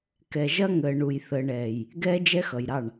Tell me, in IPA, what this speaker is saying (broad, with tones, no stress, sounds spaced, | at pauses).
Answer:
k ɛ˨ ʒ ɐ˦ ŋ əː˨ ɳ u˨ j θ əː˨ ɳ ɛː˨ j | ɡ ɛː˦ d͡ʒ ɛ˦ x ʌ˨ j ɾ ɑ˦˨ ɳ